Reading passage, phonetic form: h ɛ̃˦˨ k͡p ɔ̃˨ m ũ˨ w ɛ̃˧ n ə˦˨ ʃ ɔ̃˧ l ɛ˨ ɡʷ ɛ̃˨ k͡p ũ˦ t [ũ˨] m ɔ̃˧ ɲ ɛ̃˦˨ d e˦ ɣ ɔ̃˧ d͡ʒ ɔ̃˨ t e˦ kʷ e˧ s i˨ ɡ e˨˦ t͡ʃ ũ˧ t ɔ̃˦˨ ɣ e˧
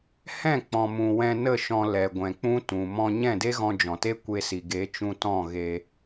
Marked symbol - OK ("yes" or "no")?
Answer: yes